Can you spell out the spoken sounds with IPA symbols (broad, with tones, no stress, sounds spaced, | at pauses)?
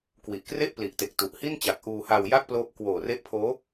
k w i˨˩ ʔ k r e˥˩ ʔ p l i˨˩ ʔ t e˨˩ k̚ t u˨˩ ʔ h i˥˩ n t͡ɕ a˨˩ k̚ ʔ uː˧ h aː˧ w j a˥˩ k̚ p l oː˦˥ p̚ k w oː˨˩ r e˦˥ ʔ pʰ oː˦˥